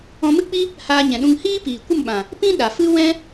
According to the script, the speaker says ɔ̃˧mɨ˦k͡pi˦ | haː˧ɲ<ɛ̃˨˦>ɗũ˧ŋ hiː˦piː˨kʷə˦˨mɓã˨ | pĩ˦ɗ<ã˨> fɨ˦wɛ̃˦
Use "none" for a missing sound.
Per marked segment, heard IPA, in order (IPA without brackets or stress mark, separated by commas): ɛ̃˨, a˨